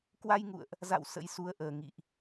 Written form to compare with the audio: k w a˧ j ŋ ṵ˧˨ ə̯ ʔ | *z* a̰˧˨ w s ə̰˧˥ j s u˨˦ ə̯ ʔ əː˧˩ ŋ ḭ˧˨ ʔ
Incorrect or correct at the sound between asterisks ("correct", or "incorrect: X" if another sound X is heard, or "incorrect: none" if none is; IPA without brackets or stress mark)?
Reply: correct